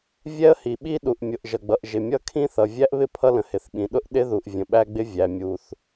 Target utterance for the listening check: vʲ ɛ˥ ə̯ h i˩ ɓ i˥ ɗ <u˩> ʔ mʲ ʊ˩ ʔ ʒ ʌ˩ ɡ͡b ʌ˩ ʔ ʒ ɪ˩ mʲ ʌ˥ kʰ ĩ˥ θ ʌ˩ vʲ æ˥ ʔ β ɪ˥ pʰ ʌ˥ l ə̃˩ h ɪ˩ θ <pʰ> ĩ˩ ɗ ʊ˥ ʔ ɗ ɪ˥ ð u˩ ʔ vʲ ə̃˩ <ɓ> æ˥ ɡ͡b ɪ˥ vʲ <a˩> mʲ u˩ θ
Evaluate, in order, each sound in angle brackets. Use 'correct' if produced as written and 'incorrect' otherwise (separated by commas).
correct, incorrect, correct, incorrect